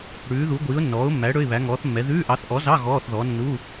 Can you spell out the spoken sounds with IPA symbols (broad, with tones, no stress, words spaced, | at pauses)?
ɽʉː˨˥ðu˨˥ɡʷiː˨˥ʊ̯ nːɔː˨˥ʊ̯mːæ˨˥ ɽɵ˧˥˧ɪ̯βæ˨˥ŋɔː˨˥θmːɛ˨˥ ðʉː˧˥˧ʔɑ˨˥θ ʔɔ˨˥zɑ˧˥˧ ɣɔː˧˥˧θðɔ˨˥ nːu˧˥˧